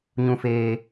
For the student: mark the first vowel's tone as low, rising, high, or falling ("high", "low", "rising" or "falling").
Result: low